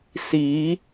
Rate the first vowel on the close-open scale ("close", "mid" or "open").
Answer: close